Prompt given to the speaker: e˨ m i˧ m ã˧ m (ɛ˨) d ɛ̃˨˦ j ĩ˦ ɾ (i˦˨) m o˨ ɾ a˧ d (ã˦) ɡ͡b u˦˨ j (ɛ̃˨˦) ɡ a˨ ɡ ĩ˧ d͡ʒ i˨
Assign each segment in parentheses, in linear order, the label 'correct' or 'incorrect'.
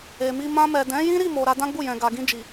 correct, correct, correct, incorrect

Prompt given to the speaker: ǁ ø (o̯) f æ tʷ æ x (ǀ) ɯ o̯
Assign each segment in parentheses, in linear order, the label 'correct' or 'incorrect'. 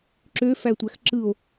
incorrect, incorrect

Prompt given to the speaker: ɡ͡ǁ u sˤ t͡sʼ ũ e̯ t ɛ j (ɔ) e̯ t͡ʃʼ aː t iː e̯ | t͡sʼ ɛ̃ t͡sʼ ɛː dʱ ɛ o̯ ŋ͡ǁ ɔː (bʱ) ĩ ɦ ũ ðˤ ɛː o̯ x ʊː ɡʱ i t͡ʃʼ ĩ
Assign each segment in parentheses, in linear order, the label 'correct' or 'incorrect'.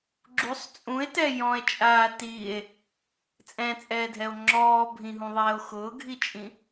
incorrect, correct

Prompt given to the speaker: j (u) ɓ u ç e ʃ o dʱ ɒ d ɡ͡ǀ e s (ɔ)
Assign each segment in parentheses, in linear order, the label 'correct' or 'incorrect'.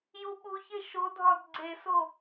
correct, incorrect

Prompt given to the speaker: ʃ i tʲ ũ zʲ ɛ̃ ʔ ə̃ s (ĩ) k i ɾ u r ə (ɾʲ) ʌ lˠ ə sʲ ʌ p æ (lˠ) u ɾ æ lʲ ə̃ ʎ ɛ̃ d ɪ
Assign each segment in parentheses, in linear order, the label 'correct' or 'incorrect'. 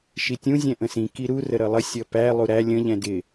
correct, incorrect, correct

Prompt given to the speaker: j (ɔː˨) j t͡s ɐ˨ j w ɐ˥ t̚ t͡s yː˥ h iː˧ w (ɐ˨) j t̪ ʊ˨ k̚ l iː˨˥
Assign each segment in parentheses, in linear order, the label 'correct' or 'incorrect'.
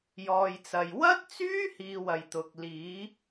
correct, correct

